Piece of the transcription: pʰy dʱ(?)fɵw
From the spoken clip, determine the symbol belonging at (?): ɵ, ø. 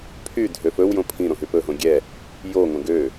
ø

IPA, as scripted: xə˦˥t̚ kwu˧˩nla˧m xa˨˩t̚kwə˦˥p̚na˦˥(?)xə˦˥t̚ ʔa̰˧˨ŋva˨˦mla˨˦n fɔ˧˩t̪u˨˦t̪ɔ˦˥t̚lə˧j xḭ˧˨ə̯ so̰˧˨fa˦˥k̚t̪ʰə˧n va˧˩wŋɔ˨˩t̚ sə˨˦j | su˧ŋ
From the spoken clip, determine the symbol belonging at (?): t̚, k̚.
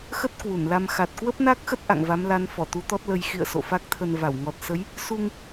k̚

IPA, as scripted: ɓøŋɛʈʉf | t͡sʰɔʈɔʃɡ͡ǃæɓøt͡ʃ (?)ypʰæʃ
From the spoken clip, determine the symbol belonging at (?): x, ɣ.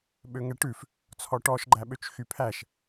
x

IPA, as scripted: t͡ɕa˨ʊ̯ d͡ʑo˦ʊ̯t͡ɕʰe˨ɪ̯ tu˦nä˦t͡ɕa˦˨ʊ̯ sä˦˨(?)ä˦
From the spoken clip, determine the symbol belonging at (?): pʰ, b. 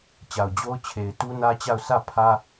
pʰ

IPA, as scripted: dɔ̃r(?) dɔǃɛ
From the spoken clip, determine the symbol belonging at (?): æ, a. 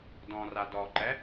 a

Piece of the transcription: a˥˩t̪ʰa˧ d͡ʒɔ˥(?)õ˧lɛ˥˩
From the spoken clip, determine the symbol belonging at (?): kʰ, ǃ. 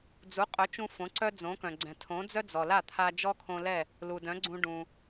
kʰ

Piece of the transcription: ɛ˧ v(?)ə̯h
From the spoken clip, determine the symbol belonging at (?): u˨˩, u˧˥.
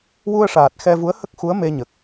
u˧˥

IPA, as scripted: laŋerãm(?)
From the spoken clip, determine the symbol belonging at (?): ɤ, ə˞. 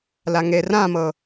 ɤ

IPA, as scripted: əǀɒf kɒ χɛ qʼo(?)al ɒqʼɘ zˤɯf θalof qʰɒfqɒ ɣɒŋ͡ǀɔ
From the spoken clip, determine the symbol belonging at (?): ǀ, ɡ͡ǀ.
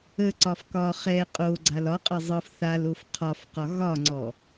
ɡ͡ǀ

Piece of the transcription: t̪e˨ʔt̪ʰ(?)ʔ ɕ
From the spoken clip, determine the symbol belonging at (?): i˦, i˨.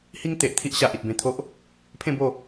i˦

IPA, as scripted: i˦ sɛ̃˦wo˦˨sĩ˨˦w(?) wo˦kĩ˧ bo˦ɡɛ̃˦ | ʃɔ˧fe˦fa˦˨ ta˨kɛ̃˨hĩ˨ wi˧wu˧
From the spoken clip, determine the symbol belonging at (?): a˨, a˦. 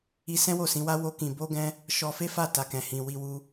a˦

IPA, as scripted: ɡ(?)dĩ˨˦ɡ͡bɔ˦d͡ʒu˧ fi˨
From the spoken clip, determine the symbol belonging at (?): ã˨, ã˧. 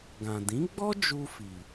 ã˨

